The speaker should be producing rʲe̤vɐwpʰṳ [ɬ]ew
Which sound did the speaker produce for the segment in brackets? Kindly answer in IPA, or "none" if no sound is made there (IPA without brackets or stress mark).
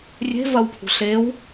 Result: ɬ